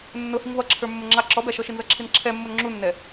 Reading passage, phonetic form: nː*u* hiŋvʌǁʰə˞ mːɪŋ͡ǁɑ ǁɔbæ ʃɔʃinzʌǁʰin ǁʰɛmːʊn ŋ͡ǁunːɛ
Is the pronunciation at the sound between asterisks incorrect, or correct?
incorrect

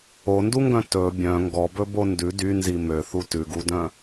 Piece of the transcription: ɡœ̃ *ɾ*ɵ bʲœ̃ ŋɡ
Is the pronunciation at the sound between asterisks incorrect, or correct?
incorrect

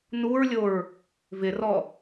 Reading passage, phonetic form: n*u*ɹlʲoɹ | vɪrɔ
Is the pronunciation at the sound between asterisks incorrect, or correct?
correct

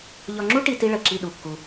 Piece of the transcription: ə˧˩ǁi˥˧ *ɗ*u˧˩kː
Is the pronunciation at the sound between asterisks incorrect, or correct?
correct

